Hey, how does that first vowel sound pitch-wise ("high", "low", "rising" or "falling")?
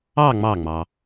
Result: falling